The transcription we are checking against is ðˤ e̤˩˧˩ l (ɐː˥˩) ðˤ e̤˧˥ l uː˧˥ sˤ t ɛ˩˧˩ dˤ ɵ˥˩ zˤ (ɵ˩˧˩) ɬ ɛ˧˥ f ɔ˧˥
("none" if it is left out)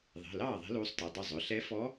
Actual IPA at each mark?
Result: ɑː˥˩, ɵ˩˧˩

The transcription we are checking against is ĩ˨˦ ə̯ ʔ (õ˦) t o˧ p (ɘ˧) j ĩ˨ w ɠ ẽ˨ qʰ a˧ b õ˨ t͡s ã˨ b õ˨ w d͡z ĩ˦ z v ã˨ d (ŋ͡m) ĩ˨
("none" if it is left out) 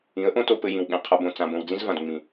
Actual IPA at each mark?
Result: õ˦, ɘ˧, ŋ͡m

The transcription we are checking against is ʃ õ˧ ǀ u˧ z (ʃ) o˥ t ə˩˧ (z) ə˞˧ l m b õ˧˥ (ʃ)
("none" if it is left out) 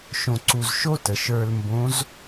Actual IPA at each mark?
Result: ʃ, ʃ, z

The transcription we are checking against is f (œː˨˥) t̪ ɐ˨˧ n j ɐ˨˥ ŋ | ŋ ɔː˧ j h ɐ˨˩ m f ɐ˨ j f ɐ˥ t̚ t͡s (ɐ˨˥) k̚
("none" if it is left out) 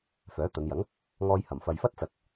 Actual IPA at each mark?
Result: œː˨˥, ɐ˨˥

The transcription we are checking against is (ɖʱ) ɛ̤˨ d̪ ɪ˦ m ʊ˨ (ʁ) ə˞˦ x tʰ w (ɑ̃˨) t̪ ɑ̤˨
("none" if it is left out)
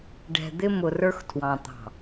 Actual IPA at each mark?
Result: ɖ, r, ɑ̃˨

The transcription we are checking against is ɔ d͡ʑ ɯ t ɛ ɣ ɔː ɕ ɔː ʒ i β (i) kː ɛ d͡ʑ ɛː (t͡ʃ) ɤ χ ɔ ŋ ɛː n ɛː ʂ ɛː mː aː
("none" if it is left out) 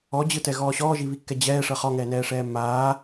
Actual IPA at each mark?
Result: i, ʂ

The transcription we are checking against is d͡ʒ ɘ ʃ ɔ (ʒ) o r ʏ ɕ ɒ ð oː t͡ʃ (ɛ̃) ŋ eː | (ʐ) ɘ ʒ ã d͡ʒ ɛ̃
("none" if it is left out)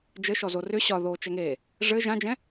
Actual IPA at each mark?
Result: z, ɛ, ʐ

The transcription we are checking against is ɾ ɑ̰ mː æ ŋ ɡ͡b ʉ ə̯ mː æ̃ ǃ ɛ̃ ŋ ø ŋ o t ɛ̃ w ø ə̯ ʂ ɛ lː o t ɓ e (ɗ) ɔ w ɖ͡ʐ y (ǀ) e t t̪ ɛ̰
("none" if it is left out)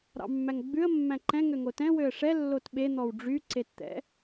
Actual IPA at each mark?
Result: n̪, ǀ

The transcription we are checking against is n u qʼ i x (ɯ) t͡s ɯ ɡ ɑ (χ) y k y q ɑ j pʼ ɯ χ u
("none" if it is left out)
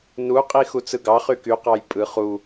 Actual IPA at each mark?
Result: u, χ

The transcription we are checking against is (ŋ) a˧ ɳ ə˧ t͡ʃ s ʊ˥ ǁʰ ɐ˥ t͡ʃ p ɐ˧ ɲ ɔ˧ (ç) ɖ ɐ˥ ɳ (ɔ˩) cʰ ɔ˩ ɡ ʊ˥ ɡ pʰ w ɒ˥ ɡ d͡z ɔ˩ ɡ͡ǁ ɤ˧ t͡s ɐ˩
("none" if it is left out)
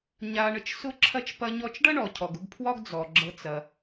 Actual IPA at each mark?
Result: ɲ, t͡ʃ, ɔ˩

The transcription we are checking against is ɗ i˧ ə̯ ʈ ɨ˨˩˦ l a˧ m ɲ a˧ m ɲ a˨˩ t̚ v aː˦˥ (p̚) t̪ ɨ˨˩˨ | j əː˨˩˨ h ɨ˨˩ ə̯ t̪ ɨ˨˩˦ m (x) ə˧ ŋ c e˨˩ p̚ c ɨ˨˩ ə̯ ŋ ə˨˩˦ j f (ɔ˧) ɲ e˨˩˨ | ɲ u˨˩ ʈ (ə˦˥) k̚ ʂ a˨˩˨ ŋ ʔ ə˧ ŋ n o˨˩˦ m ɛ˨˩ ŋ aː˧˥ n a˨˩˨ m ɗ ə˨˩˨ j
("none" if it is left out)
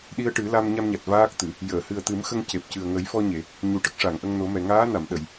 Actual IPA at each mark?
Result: k̚, x, ɔ˧, ə˦˥

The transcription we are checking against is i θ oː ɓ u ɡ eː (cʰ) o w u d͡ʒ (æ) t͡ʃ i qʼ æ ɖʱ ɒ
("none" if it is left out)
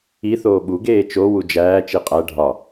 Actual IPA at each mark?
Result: t͡ʃ, æː

